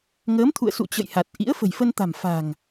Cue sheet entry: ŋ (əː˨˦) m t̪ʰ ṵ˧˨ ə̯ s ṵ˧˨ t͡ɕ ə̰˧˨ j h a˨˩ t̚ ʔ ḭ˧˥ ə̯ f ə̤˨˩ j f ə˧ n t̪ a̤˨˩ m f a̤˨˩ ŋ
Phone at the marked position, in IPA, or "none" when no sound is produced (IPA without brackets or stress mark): əː˨˦